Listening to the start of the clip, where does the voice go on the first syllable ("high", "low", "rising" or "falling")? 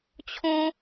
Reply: high